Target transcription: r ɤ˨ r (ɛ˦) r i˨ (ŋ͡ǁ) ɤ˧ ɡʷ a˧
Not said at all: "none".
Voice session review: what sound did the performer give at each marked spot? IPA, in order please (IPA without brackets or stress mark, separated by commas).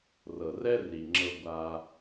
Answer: ɛ˦, ŋ͡ǁ